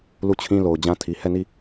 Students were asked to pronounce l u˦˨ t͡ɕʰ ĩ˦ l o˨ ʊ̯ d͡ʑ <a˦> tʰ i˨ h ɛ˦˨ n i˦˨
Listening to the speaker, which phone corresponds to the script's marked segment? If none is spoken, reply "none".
ã˦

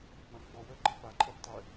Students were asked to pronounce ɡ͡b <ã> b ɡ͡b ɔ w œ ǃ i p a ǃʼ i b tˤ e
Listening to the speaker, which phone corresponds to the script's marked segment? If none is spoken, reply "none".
ã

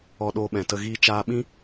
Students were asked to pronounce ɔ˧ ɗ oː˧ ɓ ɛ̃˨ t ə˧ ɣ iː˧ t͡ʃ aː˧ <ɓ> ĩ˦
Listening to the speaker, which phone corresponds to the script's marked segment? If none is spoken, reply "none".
ɓ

